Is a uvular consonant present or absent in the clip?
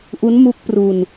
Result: absent